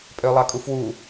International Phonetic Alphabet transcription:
pʼ ø lˠ ɑ kʼ u f w u

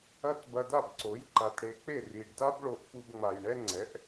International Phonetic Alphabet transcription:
ɐ˥˩ t b ɐ˧ d a˥˩ b ǀ o˩˥ j ǃ a˩ t ɽ e˩˥ k͡p e˥˩ r i˩ ɖ d a˥ b ɭ o˧ ʔ f u˧ b ŋ͡m a˩ j ɳ ɛ˥ ŋ͡ǀ ɛ˩˥ ʔ

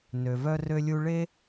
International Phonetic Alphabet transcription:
n ø˩ v œ˧ r ø˧ lʲ u˧ ɭ e˥

